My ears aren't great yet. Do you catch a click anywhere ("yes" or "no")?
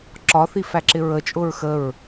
yes